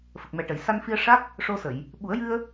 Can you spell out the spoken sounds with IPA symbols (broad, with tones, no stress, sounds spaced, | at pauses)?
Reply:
f ə˨˩ k̚ m ɛ˨˩ ʈ ə˨˩˨ j s a˧ n f i˧ ə̯ ʂ a˦˥ k̚ | ʂ o˧ s ə˨˩˨ j | ɓ u˨˩˦ ə̯ j ɨ˧ ə̯